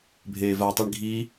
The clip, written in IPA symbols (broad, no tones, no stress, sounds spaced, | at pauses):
bʱ eː v a tˤ i ɳ ɡʱ i